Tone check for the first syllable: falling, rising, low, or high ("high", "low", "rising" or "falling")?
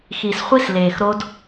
low